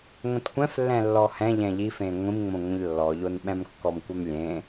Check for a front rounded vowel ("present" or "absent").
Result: absent